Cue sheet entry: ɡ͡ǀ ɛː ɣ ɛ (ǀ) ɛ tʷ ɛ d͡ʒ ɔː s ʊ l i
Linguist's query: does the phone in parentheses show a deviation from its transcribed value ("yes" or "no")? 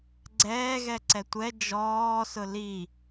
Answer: no